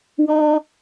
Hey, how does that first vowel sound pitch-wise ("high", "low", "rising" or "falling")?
high